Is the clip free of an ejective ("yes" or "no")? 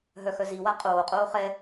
no